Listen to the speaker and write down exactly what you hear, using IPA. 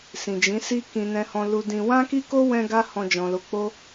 s ĩ˨ d͡ʒ ĩ˨˦ s i˦ k ĩ˧ n ɛ̃˧ h ɔ̃˧ l u˧ d ĩ˧ w ã˦ k i˦ k o˦ w ɛ̃˦ ɡ a˦ h ɔ̃˧ d͡ʒ ɔ̃˨ l o˨˦ k͡p o˦

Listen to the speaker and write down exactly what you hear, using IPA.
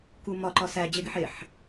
k u m ɒ ǃ ɒ s æ d͡ʑ e ɡ i ħ e ħ

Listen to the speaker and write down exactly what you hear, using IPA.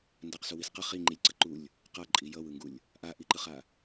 n d a q s u w i s q ʌ χ i ŋ͡ǃ i lʲ ǀ ʌ ǃ u lʲ | q a ǃʼ i j ʌ w ɯ ŋ ɡ u lʲ | ʔ a ʔ i ǃ ɯ χ a

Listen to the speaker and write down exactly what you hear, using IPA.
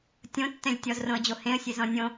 tʲ õ tː ɛ̃ lʲ tʲ ɔ z r õ ə̯ d͡ʑ o h ẽ ə̯ sʲ e z ɔ̃ nʲ õ

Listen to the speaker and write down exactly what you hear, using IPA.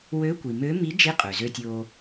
w ø˧˥ kʷ i˩ m ø˧˥ m i˧˥ d͡ʒ i˧˥ qʼ ø˩ z ø˧ tʲ oː˧

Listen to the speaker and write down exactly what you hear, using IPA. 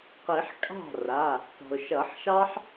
q i˨˩˦ ħ kʼ ɑ̤˥˩ r a˩˧˩ | t ɔ̤˩ ʊ̯ ʃ ʌ˨˩˦ ħ ʃ ɑ˥ ħ

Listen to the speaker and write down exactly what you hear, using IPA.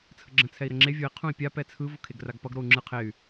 t͡sʰ ə ɡ͡ǁ ə̃ t͡sʰ ɛ i̯ ɾ ə ŋ͡ǁ e vʲ o i̯ qʰ ũ i̯ pʲ a p ɛ t͡sʰ ɯ v o kʰ e ɡ r a ɡ p ʌ ɡ ɾ o u̯ ŋ͡ǁ ɯ qʰ e y̯

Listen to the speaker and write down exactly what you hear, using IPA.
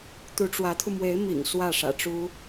t̪ u˧˥ ʈ͡ʂ w ä˧˥ t̪ʰ u˧ m w e˧˥ ɪ̯ m ḭ˨˩ ŋ s w ä˥˩ ʂ ä̰˨˩ ʈ͡ʂ u˥

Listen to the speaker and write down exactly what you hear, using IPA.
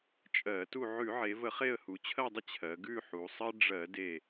t͡ʃʼ ɜ˧˩˧ t u˦˨ ʕ ʉ˧˩˧ ʕ e˩˧ v ə˧˩˧ χ e˦˨ ə̯ h u˩˧ t͡ɕʰ ɜ˦˨ dˤ ə˦˨ t͡ɕʰ ɜ˩˧ ɡ ʉ˦˨ ħ u˩˧ sˤ ɜ˦ ɖ͡ʐ ɜ˧˩˧ d e˦˨

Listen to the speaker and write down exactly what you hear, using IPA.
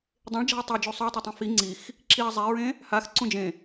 dˤ ẽ ɭ d͡ʒ ɑ̤ ɐ̯ tˤ ɛ d͡ʒ u sˤ y ɐ̯ tˤ ø tˤ ĩ f i ŋ͡ǀ i x | ǁ i ɐ̯ zˤ e ɹ ẽ | h a x ǀ ũ d͡ʒ ẽ

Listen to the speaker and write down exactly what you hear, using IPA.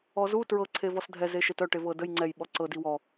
ɔ z u t ɹ ɤ ǀʰ e v ɔ s dʱ ɛ z e ʃ e t œ ʈ e v ɤ d ə j ŋ͡ǀ ɛ j ɓ ɔ ǀ ɤ d i w ɔ

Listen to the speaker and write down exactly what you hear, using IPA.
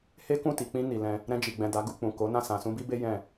h e˦ k ũ˦˨ t i˨ k͡p ĩ˧ n i˨ l ɛ̃˧ | ɾ ɛ̃˧ d͡ʒ i˨ ɡ͡b ɛ̃˨ d a˨˦ ɡ u˦˨ k͡p ũ˨ k o˨˦ n ã˦˨ s ã˨ s ũ˧ b i˦ b e˦ j ɛ̃˦˨

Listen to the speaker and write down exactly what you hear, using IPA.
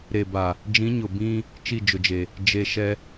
ɾ e˨ b a˨ | d͡ʒ ĩ˨˦ ɲ ʊ˨ b ĩ˦ | t͡ʃ i˦˨ d͡ʒ ʊ˨ d͡ʒ e˨ | d͡ʒ e˨ ʃ ɛ˦

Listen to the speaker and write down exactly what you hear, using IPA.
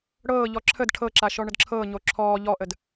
ɽ ɤː ʎ ɔ ǁʰ ə d ʈʰ ɤ ǁ a ʃ ɔ ɳ ə d ǁʰ ɤː ɲ o ǁʰ ɔː ʎ ɔ ʔ ə d

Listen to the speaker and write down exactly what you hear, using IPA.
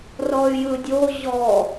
r ɔ y̯ j ɯ dʲ o ʑ ɔ

